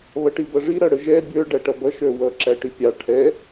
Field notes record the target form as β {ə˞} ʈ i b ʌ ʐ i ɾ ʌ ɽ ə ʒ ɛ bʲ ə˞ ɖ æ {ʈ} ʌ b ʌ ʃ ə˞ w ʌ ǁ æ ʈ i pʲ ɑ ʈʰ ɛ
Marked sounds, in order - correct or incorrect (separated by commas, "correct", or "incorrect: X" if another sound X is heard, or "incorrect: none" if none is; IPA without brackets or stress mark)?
incorrect: ʌ, correct